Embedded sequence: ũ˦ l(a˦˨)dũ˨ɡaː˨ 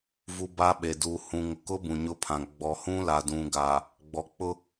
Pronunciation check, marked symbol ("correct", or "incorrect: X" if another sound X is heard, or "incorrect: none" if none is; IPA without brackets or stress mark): incorrect: a˨